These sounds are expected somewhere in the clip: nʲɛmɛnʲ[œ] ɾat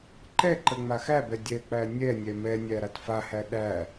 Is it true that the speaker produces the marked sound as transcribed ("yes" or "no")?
no